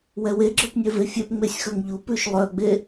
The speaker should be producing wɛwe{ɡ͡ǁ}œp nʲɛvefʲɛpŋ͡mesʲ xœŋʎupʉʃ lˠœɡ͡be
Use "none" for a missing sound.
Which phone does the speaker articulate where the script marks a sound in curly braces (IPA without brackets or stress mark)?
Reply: ɡ͡ǁ